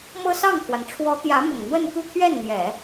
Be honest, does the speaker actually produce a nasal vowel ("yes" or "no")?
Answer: no